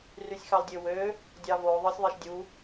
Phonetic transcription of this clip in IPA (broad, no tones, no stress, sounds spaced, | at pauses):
r y sʲ x ɑ l dʲ ø w ø | dʲ ɑ v o ðˤ ɯ sʲ ðˤ e ʃ dʲ u